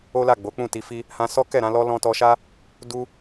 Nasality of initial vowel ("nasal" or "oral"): oral